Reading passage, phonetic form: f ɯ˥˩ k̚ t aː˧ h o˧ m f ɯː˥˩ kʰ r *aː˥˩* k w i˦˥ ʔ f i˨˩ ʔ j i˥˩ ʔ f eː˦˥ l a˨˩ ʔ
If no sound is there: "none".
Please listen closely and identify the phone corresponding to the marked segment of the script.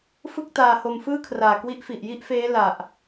aː˨˩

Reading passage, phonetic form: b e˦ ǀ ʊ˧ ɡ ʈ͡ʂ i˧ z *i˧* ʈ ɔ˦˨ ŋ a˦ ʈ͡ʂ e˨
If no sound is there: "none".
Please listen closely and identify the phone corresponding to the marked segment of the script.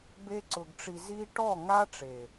i˦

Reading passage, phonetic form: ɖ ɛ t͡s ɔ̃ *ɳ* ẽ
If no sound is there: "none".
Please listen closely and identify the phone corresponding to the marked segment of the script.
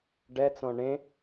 ɳ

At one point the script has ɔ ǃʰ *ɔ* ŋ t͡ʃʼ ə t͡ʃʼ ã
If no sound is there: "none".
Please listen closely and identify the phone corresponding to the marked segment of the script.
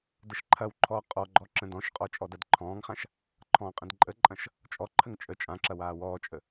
ə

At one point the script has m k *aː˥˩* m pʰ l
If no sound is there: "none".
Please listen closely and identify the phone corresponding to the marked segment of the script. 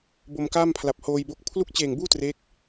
aː˥˩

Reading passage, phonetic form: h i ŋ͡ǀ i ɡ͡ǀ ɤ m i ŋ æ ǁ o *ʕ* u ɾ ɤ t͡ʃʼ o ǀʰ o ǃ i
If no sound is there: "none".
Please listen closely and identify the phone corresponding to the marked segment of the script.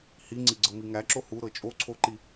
h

